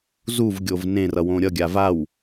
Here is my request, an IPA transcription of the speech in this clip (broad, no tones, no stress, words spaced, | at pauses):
zuvɡʲov nẽrʌwõ ɾʲʌɡʲa vaw